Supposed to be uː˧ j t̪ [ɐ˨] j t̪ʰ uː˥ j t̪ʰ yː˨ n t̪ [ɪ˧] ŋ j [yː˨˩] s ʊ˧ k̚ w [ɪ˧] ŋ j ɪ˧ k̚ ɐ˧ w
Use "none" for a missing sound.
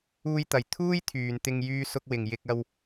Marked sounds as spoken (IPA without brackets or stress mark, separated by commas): ɐ˨, ɪ˧, yː˧, ɪ˨